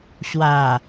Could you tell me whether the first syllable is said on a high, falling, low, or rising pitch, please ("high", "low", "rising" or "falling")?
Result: low